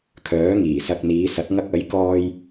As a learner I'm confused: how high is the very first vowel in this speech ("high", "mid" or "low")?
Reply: mid